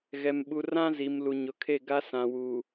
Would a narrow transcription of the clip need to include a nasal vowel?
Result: yes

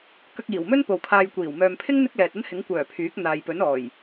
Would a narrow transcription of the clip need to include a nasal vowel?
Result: no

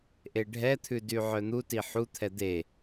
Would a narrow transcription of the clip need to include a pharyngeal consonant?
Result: yes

